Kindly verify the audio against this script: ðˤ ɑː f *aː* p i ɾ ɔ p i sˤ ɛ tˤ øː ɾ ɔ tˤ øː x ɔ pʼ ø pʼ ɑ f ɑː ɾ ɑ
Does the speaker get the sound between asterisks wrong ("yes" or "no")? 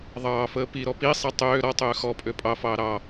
yes